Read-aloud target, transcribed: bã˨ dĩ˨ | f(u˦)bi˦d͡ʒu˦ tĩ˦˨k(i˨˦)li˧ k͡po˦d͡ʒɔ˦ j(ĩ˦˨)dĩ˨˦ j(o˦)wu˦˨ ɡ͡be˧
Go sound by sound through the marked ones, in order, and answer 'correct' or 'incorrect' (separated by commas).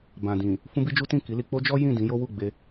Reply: incorrect, correct, correct, correct